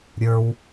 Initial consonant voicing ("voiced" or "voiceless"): voiced